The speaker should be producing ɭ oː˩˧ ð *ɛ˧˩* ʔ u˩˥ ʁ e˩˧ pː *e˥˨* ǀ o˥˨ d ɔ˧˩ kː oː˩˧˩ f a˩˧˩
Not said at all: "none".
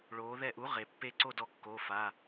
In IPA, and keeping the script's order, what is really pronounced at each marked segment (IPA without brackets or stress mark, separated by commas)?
ɛ˧˩, e˥˨